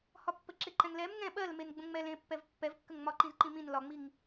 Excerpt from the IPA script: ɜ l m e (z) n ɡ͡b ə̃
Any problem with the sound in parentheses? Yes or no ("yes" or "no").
yes